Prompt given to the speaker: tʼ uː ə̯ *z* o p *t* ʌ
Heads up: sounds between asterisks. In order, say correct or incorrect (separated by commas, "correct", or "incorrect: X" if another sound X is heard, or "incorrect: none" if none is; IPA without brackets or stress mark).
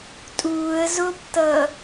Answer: correct, correct